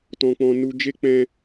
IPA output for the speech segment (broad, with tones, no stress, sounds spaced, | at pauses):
t ɔ̃˧ k͡p ɔ̃˧ n u˧ d͡ʒ e˦ k͡p ɛ̃˦